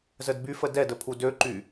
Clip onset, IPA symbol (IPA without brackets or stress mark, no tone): z